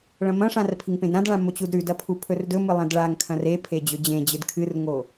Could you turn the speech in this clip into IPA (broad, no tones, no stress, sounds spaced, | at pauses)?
ɭ ɐ̃ m ɐ̃ ʂ ã r pʰ i ŋ p ẽ d ɾ ã d ɭ ã m o t͡ɕ u d ɾ ʉ d ɐ pʰ u pʰ ɵ r d ɵ m ɨ lˠ ɐ̃ d ɭ a ŋ kʰ ɐ̃ r e pʰ e d͡ʑ ɵ d͡ʑ ẽ d͡ʑ ɨ d kʰ ɨ r ŋ o